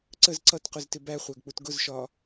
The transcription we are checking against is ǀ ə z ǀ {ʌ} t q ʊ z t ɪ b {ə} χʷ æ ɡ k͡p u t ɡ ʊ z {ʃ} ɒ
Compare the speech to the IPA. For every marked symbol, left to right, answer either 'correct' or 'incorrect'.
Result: correct, incorrect: æ, correct

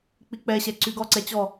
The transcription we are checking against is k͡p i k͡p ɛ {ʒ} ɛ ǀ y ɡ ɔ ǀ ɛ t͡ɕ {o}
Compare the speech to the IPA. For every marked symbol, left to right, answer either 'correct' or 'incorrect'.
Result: incorrect: ɕ, incorrect: ɔ

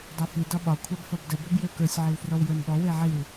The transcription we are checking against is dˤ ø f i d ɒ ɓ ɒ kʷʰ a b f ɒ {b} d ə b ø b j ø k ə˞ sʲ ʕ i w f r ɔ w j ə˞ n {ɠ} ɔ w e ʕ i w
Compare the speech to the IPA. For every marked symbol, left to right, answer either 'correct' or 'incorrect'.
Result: correct, correct

